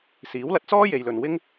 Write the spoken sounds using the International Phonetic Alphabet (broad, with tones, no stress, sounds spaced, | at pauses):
s iː˨˥ w l ɐ˧ t̚ t͡s ɔː˥ j e˨ j l ɵ˨ n w ɪ˥ ŋ